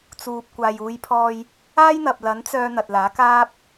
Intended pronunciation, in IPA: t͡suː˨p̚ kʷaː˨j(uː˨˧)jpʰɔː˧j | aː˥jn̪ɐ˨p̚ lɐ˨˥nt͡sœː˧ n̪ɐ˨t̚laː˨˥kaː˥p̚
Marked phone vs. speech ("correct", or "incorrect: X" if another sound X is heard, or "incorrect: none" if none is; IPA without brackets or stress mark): correct